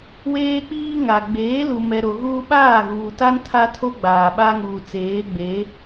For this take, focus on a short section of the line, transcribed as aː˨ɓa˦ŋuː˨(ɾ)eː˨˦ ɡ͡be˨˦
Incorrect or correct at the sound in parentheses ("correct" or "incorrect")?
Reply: incorrect